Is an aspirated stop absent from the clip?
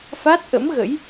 yes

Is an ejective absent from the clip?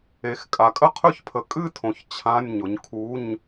no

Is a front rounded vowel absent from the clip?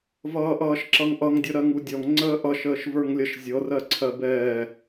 yes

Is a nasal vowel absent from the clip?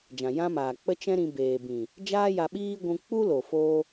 no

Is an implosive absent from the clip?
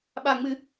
no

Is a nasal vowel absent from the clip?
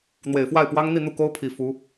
yes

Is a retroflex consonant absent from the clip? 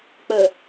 yes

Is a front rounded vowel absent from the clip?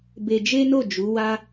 yes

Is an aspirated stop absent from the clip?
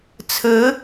no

